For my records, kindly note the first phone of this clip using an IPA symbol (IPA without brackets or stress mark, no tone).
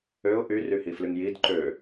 ø